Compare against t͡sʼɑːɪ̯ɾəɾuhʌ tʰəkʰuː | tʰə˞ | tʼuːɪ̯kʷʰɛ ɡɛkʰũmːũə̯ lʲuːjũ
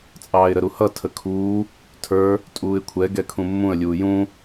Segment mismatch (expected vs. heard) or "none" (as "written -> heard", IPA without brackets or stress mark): none